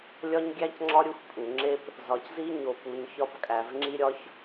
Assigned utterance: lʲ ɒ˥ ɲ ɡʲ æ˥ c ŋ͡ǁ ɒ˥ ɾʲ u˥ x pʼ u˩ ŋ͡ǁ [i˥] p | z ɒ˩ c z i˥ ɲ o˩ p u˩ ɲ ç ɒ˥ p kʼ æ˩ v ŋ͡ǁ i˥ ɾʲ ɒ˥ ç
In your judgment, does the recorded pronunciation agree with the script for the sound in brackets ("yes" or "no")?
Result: no